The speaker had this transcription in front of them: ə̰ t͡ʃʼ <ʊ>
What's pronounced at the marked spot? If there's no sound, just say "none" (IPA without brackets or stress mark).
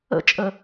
ə